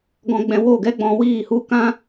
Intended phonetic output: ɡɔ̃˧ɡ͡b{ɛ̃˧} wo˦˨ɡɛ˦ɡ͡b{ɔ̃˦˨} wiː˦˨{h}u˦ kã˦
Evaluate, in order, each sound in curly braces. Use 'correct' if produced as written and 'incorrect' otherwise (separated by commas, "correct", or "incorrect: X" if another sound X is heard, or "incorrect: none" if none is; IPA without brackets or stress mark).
correct, incorrect: ɔ̃˧, correct